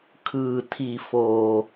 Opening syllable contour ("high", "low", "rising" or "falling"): low